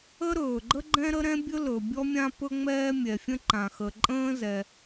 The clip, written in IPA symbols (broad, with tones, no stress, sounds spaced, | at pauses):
ə˥ ɾ ɵː˩ ɡ͡ǃ ə˥ ɡ͡ǃ ɛ̃˥ ɾ ə˥ ɾ ɛ̃˥ bʲ ɵ˥ l ɵ˩ bʲ ɔ˥ mʲ ã˥ p ɵ˥ ŋ͡m ɛː˥ mʲ ɛ˩ fʲ ə̃˥ ǃ ã˩ x ə˩ ǃʼ ə̃ː˥ z ɛ˩